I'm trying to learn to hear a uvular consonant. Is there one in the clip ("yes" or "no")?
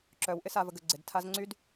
no